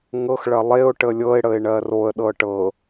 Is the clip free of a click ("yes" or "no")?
yes